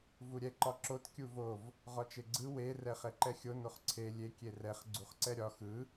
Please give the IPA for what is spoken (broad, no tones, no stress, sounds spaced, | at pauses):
v u ɾʲ ɛ ǃ ɒ ǁ o t kʲ u v o v | ʁ ɒ t͡ʃ e ɡ͡ǀ ɯ w e r ɛ χ ɛ ǃ ɛ xʲ o n o χ ǀʰ e lʲ e kʲ e r ɛ χ ɡ͡ǀ u χ ǀ ɛ ɾʲ ɒ x ɯ